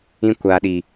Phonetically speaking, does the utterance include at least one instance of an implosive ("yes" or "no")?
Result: yes